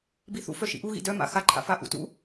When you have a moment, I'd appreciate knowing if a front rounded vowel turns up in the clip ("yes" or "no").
yes